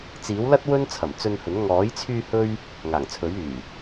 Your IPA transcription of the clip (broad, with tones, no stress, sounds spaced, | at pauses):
t͡s iː˨˥ w l ɐ˥ t̚ w ɵ˥ n t͡sʰ ɐ˨˩ m t͡s ɵ˧ n h ɵ˨˥ n ŋ ɔː˨˥ j t͡sʰ yː˧ h ɵ˥ ɥ | ŋ aː˨˩ ŋ t͡sʰ ɵ˨˥ ɥ yː˨˩